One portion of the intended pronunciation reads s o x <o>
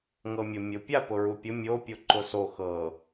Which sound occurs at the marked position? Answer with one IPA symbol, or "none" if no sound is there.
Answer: ɤ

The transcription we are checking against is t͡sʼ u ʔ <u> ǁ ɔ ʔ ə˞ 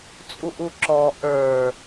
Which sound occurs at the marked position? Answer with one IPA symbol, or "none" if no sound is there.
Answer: u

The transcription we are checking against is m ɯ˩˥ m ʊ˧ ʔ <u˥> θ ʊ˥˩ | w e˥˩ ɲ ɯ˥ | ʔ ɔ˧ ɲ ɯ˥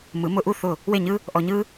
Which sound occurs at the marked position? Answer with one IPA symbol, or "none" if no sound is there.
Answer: u˥˩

